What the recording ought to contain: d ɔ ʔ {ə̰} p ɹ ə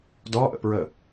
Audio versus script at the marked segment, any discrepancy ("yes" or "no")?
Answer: no